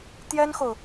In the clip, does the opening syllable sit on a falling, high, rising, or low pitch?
high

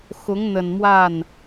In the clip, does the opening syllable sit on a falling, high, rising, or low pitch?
rising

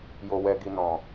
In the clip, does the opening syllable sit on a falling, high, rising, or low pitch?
low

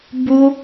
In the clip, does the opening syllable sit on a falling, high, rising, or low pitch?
high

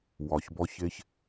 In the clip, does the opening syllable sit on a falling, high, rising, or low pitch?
low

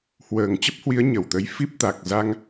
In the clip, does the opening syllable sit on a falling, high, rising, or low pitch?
low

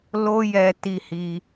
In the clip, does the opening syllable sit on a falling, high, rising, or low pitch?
high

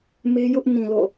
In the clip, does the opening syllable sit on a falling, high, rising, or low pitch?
high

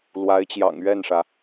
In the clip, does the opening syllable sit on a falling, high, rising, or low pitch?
rising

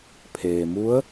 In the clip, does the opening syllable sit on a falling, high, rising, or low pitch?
low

